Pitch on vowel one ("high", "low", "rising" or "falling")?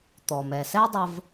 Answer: low